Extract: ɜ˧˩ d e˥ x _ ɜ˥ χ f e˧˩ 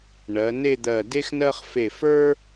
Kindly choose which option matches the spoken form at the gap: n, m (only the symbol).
n